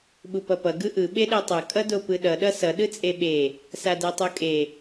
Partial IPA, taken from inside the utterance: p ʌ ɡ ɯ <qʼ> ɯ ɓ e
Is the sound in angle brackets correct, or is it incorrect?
incorrect: ʔ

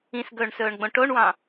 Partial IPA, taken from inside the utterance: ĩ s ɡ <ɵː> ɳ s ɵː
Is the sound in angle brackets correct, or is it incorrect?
correct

